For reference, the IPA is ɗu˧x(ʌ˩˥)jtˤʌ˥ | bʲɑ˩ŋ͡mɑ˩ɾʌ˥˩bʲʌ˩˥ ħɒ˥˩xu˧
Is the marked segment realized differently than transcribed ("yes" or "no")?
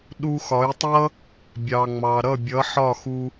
yes